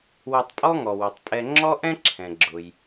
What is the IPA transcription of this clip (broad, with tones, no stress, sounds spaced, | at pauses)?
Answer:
w o˨ tˤ pʼ ɔ˦ ŋ ɔ˩ w ɵ˩ tˤ pʼ ɛ˨ ŋ͡ǁ ɔ˥ ʔ ɛ̃˥ ǁʰ ɛ̃˩ ɡ͡ǁ ʊ˩ j